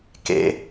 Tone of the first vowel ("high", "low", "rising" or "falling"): low